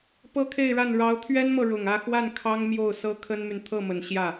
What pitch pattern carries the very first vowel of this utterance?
high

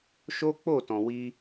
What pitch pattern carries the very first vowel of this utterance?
high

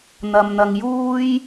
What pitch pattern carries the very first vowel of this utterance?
low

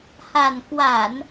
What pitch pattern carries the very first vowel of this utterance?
low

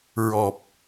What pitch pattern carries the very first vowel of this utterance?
low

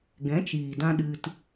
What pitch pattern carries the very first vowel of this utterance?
rising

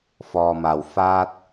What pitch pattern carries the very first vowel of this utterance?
low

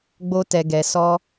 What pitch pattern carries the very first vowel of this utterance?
high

